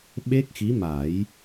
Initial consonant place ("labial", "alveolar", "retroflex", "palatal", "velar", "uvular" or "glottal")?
labial